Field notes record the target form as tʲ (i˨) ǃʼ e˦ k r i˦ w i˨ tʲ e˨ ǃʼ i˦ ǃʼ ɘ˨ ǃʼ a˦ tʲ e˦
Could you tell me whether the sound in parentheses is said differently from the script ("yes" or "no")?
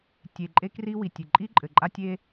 yes